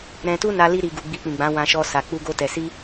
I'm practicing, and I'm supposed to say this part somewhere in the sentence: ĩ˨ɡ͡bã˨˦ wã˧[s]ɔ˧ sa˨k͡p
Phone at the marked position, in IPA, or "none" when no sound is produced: ʃ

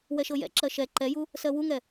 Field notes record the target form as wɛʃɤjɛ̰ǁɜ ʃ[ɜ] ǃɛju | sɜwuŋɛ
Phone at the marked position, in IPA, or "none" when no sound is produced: ɛ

